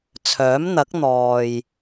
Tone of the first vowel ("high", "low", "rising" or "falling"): rising